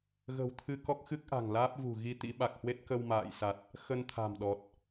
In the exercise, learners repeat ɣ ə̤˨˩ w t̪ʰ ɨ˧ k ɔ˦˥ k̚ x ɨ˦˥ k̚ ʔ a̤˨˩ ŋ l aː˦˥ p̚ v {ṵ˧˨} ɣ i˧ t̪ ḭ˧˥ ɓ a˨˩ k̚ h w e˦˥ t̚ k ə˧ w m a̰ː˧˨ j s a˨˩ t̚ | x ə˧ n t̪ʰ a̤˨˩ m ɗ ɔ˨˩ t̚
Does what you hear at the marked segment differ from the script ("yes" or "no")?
yes